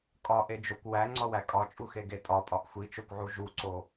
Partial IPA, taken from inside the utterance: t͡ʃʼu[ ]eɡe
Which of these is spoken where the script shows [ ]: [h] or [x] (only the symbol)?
x